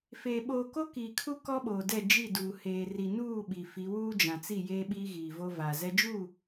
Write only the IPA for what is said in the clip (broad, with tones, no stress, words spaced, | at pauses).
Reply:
feː˨ ɓoː˨ko˦ kiː˨kʰu˦ kɔ˦ɓoː˨dɛ˦˨ d͡ʒi˦˨duː˨ heː˨ri˨nuː˦˨ ɓi˨fi˨˦ wuː˦d͡ʒã˨t͡si˦˨ jeː˦ɓiː˦ɣiː˨vo˦ vaː˨zɛ˦ d͡ʒuː˦˨